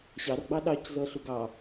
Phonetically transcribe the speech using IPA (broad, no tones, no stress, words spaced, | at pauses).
ɕɑrɡ͡bɑ ɗɑczʌɬʊ ɡɑ